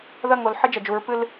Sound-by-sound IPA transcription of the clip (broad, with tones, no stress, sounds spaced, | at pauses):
ð ɐ˦˨ ŋ o˨ l ħ ɨ˦ d͡ʒ ɐ˨ d͡ʒ u˨˦ ɹ p ɨ˦ l